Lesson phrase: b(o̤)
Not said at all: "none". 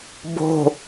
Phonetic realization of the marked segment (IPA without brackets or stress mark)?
o̤